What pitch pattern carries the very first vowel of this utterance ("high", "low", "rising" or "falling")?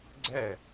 falling